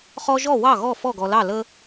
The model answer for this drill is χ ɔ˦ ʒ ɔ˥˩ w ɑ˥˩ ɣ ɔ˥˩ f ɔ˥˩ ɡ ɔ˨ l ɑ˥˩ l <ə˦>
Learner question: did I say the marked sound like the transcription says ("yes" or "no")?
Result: yes